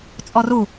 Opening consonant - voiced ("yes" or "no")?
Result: no